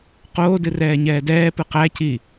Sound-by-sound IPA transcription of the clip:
q oː d ɨ r ɛː ɲ ɛː d ɛː p ɨ q æ c i

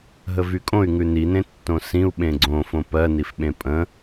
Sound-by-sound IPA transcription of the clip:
ɦ ə v y kʼ õ y̯ ŋ ʉ n i n ẽ tː õ s ĩ u̯ ɓ ẽ ɡ͡ǀ õ f õ p ɜ n i f ɓ ẽ pʼ ə̃

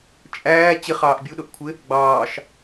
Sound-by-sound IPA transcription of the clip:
t͡ʃʼ æː t͡ɕ ɪ χ ɑː ʔ bʲ u ɗ ʊ ʔ kʷʰ ɪ | ɡ͡b ɑː ʃ

